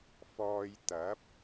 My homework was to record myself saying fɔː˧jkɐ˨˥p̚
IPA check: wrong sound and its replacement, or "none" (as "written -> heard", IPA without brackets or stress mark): k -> t̪